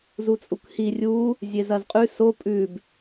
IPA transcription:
z u t͡sʼ u k h i rʲ u | zʲ e z ɐ z qʼ ʉ s o pʼ ʉ b

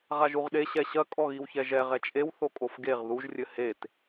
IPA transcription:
ʁ a ʒ u ʁ ɗ e ɕ ɛ ɕ ɐ kʼ ɔ ɣ i w ç ɛ ʒ ɛ ʁ ɛ t͡ʃʼ e w θ o kʼ o f ɡ e ʁ ð u ʒ rʲ ɘ h e t

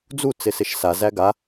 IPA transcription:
d͡z u t͡s ɪ s ɪ ʃ s a z æ ɡ a

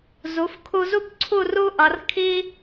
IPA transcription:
z u˩˧ f kʰ u˧ z u˥˧ p ǀʰ u˥˧ r u˥ ʔ ʌ˩˧ r kʰ i˥

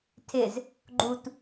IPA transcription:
tʰ ɪ z | ɡ͡ǃ u t

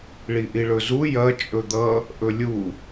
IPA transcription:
ɭ i ʔ i ɭ ɵ z u j ɐ t͡ʃʼ ɵ d̪ ʌ | ʔ ɵ lʲ u

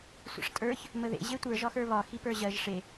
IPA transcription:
sʷ ə̰ ʂ tʼ ə˞ ç | m ə ð ḛ ʑ e tʷ ə˞ ʒ ɒ x ə˞ β ɒ x i p ə˞ ʑ ɜ ʒ ʂ e

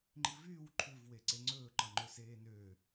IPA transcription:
ŋ͡ǃ i v yː w ǃʰ ʉ v w e ǀ e ŋ͡ǀ ɵː ǃ ɑ ŋ͡ǃ ø s eː n ø

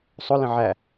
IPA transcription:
sˤ ʊ l ə̃ ʕ æ

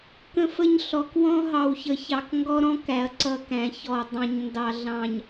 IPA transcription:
k ə̃˦ f ə˦ ɲ ɬ ɔ˨ k w ɔ̃˦ ɦ ɑ˨ w ç ə˨ ç ɑ˨ k ŋ ɡ ɔ˦ ɾ ɔ̃˦ k æ˨ ɐ̯ ǀ ʌ˦ k æ̃˨ ç ɔ˨ dˤ ɑ̃˨ ɲ n d ɑ˨ ɮ ɑ̃˨ ɲ

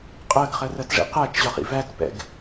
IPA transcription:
qʼ ɜ ɡ χ ɜ r ɜ t ʐ ḭ q æ t͡ʃ ʑ ɒ χ ḭ v æ t p ɛ̰ ɡ

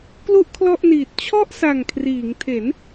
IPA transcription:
k l u˥˩ ʔ kʰ l ɔ˥˩ ʔ n iː˨˩ t̚ t͡ɕʰ ɔ˥˩ ʔ s a˨˩ ŋ kʰ r iː˩˦ ŋ tʰ e˩˦ n

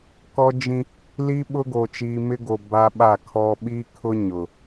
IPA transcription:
k ɔ˦ d͡ʒ ĩ˦ | l i˦ ɓ ʊ˦ ɡ o˨ t͡ʃ iː˨ m ɪ˦ ɡ o˨ b a˦ ɓ a˦˨ kʰ ɔ˦ ɓ i˦ kʰ ʊ˦ ɲ ʊ˨

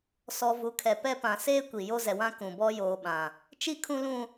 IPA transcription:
s ɔ˨ v u˨ kʰ ɛ˨ p ɛ˦ p ã˨ s eː˦ kʷ i˨ j o˦ z ɛ˨ w ã˦ k ũ˨ b ɔ˦ j oː˨ ɓ ã˨ | t͡ʃ i˦ kʰ ũ˦ l ũ˦

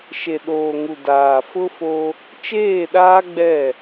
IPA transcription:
ʃ e˨ ɗ oː˨ ŋ u˨ d aː˨ f ʊ˦ f o˦ | t͡ʃ eː˦˨ ɗ aː˦ ɡ͡b ɛ˦˨

